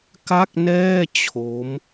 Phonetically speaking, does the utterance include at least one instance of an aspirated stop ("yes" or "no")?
yes